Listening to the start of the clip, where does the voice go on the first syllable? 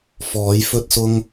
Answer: rising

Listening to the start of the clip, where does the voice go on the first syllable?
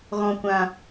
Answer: low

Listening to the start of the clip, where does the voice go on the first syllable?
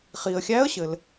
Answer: low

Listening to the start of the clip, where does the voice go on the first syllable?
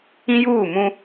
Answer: high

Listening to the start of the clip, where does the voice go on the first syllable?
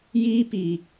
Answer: high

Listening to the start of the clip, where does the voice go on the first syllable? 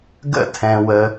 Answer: high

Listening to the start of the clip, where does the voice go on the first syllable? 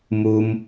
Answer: low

